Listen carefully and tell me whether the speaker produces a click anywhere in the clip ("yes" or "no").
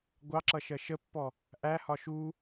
yes